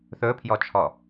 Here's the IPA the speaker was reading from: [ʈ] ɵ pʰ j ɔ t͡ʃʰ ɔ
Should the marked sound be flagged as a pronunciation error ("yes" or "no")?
yes